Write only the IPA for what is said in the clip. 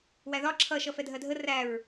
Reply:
w æ ð ɒ ǁʰ ʌ ʃ ʌ f ɛ dʱ ɜ dʱ ə r æ ɹ

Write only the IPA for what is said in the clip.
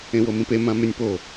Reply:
ẽ w o m ĩ p e m ã m ʉ nʲ p o

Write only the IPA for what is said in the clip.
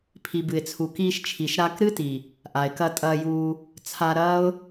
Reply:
pʰ i˨ b ɨ˨ ɪ̯ t͡sʰ u˨ k iː˧ ʃ t͡ʃʰ i˨ ʃ ɾ a˧ k ɾ ɨ˦ t i˨ | ʔ a˨ ɪ̯ k ɐ˧ tʼ ɐː˧ j uː˧ | t͡sʰ a˧ ɾ ɐː˦ ʊ̯

